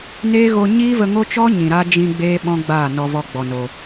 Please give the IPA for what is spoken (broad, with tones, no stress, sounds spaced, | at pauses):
n eː˦ ɣ o˧ ɲ iː˦ v ə˧ ŋ o˦ t͡ʃ ɔ˦ ɲ ĩ˨ ɾ a˦ d͡ʒ ĩ˧ ɡ͡b eː˦ ɓ ɔ̃˦ ɡ͡b aː˦˨ n ɔ˧ v ɔ˧ ɡ͡b ɔ˨ n o˨